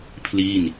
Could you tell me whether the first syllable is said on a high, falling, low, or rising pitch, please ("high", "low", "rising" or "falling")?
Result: falling